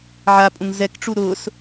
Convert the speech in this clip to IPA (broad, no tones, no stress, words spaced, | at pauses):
ʕapʼũŋ zɛkʈ͡ʂu ɾʊːs